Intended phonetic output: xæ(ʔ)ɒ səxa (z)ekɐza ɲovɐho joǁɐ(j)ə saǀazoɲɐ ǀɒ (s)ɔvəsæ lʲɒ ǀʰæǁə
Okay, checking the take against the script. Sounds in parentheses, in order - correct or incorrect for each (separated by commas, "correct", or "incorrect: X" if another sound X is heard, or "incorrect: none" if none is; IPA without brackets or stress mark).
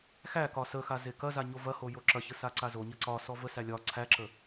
incorrect: k, correct, incorrect: ç, correct